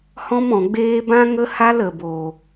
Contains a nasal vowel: yes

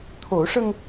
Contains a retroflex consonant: yes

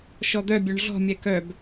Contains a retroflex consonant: yes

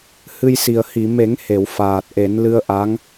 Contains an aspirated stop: no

